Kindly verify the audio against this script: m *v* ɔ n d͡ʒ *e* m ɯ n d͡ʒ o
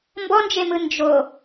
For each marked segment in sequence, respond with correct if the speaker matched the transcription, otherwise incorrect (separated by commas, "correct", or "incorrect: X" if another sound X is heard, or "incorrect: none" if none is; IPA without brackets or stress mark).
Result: incorrect: b, correct